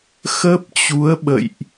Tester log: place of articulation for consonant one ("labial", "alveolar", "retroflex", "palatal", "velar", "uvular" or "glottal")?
velar